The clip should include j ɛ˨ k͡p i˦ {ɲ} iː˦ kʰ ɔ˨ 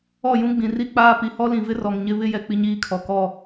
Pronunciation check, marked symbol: correct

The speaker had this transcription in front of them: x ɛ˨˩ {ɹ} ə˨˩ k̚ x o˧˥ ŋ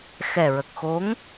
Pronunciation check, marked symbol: correct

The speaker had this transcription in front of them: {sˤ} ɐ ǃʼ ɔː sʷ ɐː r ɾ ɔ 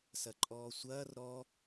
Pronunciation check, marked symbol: incorrect: s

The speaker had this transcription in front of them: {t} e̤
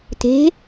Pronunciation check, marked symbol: correct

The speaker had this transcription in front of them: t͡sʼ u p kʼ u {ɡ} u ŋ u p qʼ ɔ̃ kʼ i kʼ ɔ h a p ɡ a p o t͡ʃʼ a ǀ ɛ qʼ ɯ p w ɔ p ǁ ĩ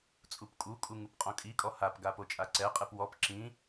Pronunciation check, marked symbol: incorrect: kʼ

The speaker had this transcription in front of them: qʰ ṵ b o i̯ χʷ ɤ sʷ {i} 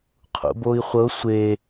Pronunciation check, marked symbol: incorrect: e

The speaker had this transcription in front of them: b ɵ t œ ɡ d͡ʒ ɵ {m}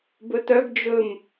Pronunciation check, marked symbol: correct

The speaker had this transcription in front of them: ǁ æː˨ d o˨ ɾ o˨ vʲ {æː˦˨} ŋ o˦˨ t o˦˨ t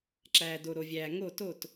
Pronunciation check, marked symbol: incorrect: æː˨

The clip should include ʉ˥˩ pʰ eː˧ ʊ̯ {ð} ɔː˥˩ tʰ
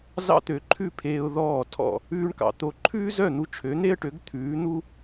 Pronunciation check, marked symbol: correct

